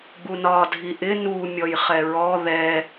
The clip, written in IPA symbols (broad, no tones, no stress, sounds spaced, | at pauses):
ɡ͡b u n ɒ dʱ i ʔ ɪ n u mʲ ɔ j χ ɛ ɹ ɔ ð ɛ